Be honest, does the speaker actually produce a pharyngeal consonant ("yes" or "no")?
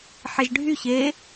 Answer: yes